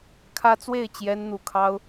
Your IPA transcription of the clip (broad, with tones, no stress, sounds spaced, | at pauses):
kʰ ä˦ t͡s w e˥˨ ɪ̯ t͡ɕ j ɛ˦ n n̪ u˨˩ kʰ ɑ˦ ʊ̯